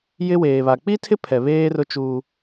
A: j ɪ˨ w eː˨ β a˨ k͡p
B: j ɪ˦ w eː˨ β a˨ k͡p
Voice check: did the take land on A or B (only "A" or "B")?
B